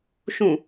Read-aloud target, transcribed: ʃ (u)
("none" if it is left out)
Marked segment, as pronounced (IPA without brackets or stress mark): ũ